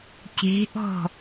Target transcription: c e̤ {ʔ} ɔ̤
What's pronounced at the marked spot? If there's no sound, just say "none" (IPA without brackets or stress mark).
ʔ